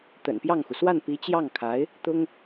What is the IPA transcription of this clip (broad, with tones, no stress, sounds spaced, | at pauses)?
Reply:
t̪ ə̰˨˩ n p j ɑ˥˩ ŋ x u˩ s w a˥˩ n p i˧˥ t͡ɕ j ɑ˥˩ ŋ kʰ a˧˥ ɪ̯ | t̪ ʊ˥ ŋ